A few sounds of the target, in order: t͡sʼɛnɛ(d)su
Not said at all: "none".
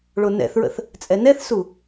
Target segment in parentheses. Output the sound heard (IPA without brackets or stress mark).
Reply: θ